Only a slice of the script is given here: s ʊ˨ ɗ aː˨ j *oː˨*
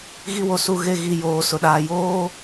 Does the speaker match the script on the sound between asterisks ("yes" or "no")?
no